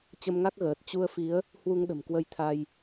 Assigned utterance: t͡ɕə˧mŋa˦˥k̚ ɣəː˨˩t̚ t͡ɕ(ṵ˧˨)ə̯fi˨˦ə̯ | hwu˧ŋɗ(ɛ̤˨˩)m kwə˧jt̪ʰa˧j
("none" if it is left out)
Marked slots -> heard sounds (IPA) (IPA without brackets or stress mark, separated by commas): u˧, ə̤˨˩